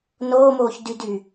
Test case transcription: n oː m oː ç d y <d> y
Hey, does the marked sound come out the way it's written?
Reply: yes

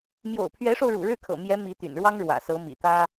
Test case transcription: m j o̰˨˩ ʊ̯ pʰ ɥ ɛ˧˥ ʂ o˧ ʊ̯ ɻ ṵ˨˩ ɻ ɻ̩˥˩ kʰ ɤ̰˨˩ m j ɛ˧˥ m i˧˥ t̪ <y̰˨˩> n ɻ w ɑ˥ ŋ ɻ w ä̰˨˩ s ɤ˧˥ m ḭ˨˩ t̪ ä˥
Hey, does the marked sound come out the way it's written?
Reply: yes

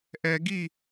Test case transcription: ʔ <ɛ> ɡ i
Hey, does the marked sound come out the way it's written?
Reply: yes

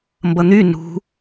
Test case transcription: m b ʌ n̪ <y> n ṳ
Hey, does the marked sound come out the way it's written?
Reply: yes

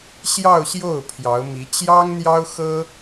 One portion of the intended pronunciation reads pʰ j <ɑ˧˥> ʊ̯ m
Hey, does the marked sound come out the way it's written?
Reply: yes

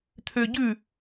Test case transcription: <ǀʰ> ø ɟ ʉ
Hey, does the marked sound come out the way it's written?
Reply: no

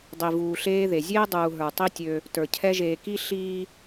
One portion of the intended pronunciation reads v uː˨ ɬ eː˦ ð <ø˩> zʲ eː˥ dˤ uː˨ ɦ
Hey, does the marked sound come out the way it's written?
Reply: no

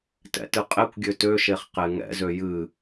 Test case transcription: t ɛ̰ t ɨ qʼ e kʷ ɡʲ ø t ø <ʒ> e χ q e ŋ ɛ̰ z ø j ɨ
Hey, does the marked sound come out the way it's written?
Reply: no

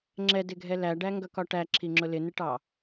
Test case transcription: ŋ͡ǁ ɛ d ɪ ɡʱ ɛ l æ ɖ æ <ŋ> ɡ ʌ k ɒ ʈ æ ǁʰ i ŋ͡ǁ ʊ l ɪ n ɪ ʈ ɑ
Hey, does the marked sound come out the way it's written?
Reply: yes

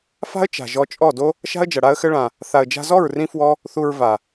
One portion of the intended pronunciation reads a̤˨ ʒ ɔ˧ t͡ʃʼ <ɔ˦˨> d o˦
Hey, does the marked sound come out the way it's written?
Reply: yes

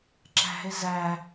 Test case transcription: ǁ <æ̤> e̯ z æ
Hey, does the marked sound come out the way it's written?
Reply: yes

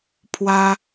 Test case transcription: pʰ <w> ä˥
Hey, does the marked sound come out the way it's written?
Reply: yes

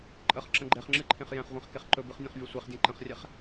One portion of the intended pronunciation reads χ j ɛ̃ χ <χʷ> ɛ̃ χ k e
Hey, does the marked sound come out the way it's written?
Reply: no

